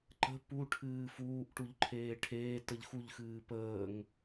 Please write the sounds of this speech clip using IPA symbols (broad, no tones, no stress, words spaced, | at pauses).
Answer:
ǃə̤ puʈʰɨː fuːʔʈuʎǃʰeː ʈʰeːtəʎ xuʎxɨː pəːŋ